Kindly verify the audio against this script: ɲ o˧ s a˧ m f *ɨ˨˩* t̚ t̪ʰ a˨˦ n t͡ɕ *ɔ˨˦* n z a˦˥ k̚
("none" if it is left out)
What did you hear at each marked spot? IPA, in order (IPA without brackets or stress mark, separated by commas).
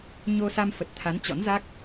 ə˨˩, ɔ̰˧˥